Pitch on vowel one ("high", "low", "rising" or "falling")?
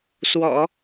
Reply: low